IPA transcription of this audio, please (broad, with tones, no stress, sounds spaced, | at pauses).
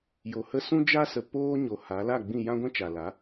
j o˨ h ə˦ s ũ˦ d͡ʒ a˦ s ə˨ p oː˦ ɲ o˨ h a˨˦ l a˦˨ ɡ͡b ĩ˦˨ j ã˦ ɡʷ ɛ̃˦ t͡ʃ a˨ l a˨˦